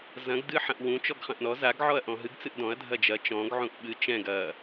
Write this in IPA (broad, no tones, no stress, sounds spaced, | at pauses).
z ɐ̃ ɡ d ɨ ħ ɐ̃ ʔ w ũ t͡ʃ ɔ ɡ χ ɐ̃ ʔ n ɔ z a ɡ ʕ ɔ ɐ̯ ʔ ɔ̃ ɦ ɨ ɡ t͡s ɨ ʔ d ɔ̃ ɐ̯ dʱ ɐ d͡ʒ ɐ t͡ʃ ɔ̃ ɡ ʕ ũ ʔ ɓ ɨ t͡ʃ ɛ̃ ɡ ɐ